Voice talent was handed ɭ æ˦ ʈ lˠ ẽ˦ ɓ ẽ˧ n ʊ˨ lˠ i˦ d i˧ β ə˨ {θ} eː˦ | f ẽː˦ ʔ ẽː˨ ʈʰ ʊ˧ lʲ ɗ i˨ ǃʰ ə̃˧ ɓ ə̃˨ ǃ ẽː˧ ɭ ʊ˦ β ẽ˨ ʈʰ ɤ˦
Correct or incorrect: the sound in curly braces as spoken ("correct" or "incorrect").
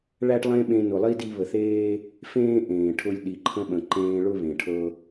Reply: correct